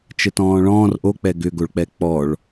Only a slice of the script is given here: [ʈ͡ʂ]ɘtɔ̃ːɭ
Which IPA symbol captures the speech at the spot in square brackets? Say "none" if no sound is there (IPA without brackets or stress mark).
t͡ʃ